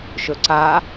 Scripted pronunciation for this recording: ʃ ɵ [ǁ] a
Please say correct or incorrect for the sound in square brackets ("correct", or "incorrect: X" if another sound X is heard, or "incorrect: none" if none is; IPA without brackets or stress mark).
incorrect: ǀ